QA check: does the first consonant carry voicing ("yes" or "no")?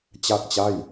no